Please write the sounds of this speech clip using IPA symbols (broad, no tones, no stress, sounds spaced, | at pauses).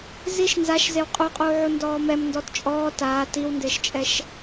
z i ʃ n z a ʃ z e w qʼ u qʼ uː ʕ u n d ɔː m ɛ m n d ɔ t t͡ʃʼ ɔː t aː t i w n d ɪː ʃ t͡ʃʼ ɛ ʃ